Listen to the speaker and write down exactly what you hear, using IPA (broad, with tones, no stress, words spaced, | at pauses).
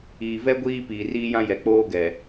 iː˨vɛ˦ ɡʷiː˦piː˨riː˦jã˦ jɛ˨k͡poː˦ɡɛ˨